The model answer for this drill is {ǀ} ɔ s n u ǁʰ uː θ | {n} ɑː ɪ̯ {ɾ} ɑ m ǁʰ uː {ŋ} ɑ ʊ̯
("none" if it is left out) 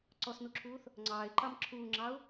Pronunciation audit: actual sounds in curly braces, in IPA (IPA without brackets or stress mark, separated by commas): ǀ, ŋ͡ǀ, ǃ, ŋ͡ǁ